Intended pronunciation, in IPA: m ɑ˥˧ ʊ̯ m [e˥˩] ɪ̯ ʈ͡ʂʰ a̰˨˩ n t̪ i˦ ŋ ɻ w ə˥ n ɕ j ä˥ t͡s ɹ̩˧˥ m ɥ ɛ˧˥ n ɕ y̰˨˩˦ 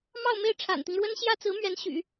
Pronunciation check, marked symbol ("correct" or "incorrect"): correct